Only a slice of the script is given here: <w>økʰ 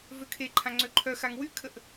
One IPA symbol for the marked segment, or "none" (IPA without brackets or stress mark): v